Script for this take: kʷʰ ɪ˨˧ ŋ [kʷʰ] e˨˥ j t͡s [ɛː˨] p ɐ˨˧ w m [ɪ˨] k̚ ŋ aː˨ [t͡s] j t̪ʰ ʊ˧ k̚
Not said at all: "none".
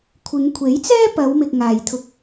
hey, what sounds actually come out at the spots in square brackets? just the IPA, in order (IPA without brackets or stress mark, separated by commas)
kʷʰ, ɛː˥, ɪ˨, none